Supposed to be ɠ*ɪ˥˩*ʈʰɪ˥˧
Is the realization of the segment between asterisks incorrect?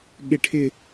no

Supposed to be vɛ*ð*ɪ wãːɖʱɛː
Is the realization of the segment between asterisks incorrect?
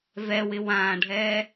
yes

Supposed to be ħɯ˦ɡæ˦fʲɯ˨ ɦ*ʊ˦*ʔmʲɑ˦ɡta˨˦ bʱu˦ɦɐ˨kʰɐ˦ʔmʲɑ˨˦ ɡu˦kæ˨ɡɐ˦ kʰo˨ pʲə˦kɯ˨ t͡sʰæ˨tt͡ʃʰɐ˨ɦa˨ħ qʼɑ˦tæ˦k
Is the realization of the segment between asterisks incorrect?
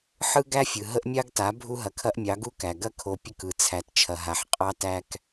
yes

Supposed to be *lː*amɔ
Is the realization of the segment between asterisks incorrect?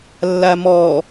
no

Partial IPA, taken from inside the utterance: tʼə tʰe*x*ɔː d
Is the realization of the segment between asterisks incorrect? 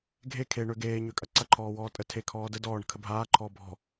yes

